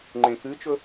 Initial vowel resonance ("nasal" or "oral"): nasal